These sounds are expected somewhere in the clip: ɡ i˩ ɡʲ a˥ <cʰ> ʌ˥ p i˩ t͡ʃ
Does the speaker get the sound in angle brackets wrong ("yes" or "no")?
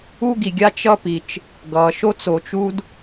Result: yes